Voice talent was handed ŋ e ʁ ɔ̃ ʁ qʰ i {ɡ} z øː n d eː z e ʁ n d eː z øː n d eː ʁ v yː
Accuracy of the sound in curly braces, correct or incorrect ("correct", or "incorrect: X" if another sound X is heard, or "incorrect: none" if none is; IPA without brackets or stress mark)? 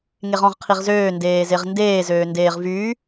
incorrect: ʁ